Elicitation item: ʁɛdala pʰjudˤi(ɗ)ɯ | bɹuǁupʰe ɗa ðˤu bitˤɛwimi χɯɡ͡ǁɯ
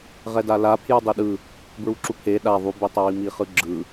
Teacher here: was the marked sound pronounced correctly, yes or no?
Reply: yes